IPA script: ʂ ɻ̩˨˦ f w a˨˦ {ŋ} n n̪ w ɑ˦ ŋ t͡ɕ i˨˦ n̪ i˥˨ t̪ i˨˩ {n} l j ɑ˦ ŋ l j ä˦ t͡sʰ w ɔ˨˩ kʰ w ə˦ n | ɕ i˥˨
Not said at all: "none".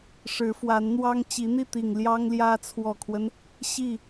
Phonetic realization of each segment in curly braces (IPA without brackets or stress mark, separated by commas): none, ŋ